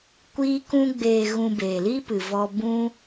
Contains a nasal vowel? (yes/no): yes